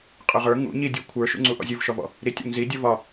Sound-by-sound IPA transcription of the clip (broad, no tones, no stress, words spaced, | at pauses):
qʼə˞ʁə˞ ŋṵ ɲidʲu kʷʰə˞ʃṵŋ͡ǀu ʔɔ̰zʲuvʃɔvɔ̰ | ɾitʲɔ̰ŋzi dʲɔvɒ